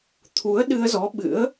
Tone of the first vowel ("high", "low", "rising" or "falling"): rising